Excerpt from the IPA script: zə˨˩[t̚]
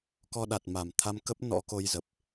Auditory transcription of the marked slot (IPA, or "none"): p̚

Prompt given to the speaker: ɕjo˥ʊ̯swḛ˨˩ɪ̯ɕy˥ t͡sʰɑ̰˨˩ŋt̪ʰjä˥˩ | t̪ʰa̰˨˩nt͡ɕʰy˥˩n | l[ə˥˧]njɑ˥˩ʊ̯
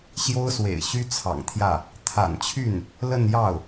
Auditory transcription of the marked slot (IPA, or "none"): ə˥˧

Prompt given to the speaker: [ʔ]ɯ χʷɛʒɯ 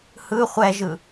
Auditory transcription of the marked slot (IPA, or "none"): h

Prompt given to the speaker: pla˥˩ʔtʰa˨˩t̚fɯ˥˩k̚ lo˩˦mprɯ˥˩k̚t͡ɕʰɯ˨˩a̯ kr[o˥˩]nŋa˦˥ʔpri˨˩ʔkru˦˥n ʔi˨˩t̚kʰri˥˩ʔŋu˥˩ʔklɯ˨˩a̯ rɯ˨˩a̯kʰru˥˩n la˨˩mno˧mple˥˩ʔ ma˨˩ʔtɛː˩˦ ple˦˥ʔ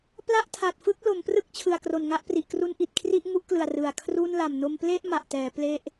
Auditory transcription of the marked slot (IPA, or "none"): o˨˩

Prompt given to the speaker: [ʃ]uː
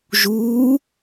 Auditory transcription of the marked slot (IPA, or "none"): ʒ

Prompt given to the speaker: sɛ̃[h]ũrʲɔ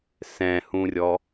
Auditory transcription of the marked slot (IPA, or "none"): h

